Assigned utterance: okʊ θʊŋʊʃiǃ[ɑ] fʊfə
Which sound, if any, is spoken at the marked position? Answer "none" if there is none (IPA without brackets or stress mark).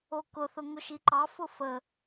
ɑ